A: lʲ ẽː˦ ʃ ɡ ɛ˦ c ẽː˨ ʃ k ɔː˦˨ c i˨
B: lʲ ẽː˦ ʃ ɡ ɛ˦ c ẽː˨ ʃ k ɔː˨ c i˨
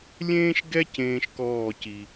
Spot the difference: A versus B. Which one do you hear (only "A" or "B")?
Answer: A